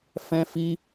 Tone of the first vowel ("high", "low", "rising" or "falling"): high